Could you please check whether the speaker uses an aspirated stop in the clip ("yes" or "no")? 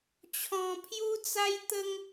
yes